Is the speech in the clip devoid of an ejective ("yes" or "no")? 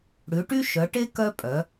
no